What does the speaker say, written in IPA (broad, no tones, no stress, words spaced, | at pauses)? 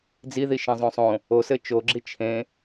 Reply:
d͡ziðiʃẽzˤõ sˤõ | osɘ t͡ʃoɡ͡ǁi t͡ʃʰẽ